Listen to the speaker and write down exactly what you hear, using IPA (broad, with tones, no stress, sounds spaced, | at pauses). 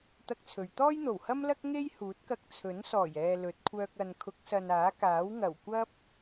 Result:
t̪ ɐ˥ k̚ t͡sʰ ɵ˨ ɥ t̪ ɔː˥ j n̪ o˨˩ w h ɐ˥ m l ɐ˥ k̚ ŋ e˥ j h uː˨˥ t̚ k ɐ˧ k̚ t͡sʰ ɵ˨˥ n s ɔː˨˩ j ɛː˨ l ɵ˨˥ t̚ kʷʰ œː˧ k̚ ɐ˨ n kʰ ʊ˨˥ k̚ s ɐ˨ n aː˨˥ k aː˨˥ w ŋ ɐ˨˩ w kʷ ɐ˧ p̚